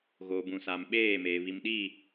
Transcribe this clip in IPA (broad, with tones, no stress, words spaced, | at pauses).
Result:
ɣoː˨bũ˨saː˨m ɓeː˦˨meː˨ βi˨mɗiː˦˨